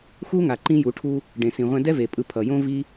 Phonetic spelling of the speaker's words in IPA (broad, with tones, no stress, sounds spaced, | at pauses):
x u˦ ŋ a˨ ǃ ĩ˦ j u˨˦ ʈʰ u˦ | ɖ ẽ˧ s ĩ˧ ʁʷ ɛ̃˦ d ɛ˦ v e˨ pʼ ɯ˧ pʰ ʌ˨ j õ˦ v i˦